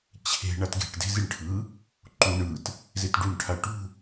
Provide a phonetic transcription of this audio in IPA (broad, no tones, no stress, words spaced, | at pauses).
t͡ɕʰe̤ ɳatɡe̤ʈ de̤ziɳʈʰɯ | ǃu ɳɯt | zetɖuɳ ʈʰaʈṳ